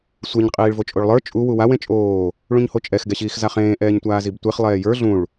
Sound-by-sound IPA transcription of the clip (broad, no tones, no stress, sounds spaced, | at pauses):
sʷ e ɲ qʼ iː ɭ v o t͡ʃʼ o ɭ lˠ ə˞ t͡ʃʼ u w u w a w ẽ t͡ʃʼ oː | ɭ ũ ɲ h o t͡ʃʼ ɛ x ɡ ɛ ɕ iː x z a χ ẽː ʔ ɛː ɲ tʷ aː z i b tʷ e χ lˠ ɛː j ə˞ ɮ ũ ɭ